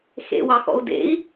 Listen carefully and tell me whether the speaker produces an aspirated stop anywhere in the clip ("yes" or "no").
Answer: no